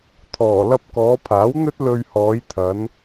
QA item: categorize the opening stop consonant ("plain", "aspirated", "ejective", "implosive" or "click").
aspirated